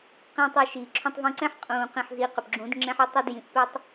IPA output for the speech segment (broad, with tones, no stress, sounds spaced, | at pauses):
q ĩː˧ tˤ ɛ˧ ʃ iː˨ ǁʰ ũ˧ tˤ v ũ˧ ǀ ɛ̃˦ ħ qʼ ũː˨ q ĩ˨ ħ z i˨˦ q ʏ˨ p ɡ͡ǁ ũ˨˦ d ŋ͡ǁ ɛ̃˦ ħ ʏ˦ tˤ ɵ˦ d j ĩ˧ ʔ p ɛ˦ tˤ